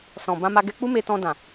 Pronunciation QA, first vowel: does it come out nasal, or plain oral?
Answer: nasal